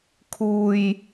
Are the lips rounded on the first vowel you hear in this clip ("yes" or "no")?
yes